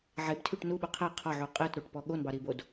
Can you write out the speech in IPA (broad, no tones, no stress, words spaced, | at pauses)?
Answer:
ʕebtʰyʈ nuɓu qʰɛ qʰɒʕu qʼetɾoʈpɔ ɠonbɑɾibod